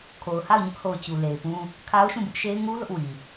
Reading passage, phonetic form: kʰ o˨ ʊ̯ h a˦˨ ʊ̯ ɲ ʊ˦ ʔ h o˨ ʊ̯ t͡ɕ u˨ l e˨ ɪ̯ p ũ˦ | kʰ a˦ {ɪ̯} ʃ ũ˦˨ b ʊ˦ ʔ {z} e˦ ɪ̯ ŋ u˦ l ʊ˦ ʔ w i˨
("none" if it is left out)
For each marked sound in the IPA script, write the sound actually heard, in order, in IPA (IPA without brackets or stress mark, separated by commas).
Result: ʊ̯, ʃ